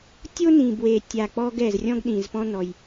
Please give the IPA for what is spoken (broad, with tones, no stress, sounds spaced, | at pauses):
tʲ o˥ n ĩ˨˩ b w e˨˩ tʲ a˨˩ k͡p ɔ˥ ɡ ɛ˨˩ z rʲ ɔ̃˥ ɡ ɗ ĩ˨˩ z p ɔ̃˥ n ɔ˨˩ j